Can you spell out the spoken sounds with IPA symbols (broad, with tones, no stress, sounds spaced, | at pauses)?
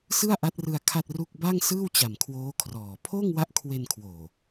s ɯ˥˩ a̯ ʔ a˦˥ t̚ r ɯ˧ a̯ kʰ a˥˩ t̚ r u˥˩ k̚ b a˥˩ ŋ s ɯː˥˩ w t͡ɕ a˨˩ m kʰ w oː˦˥ kʰ r ɔː˨˩ pʰ oː˥˩ ŋ w a˦˥ ʔ kʰ w e˧ n kʰ w oː˨˩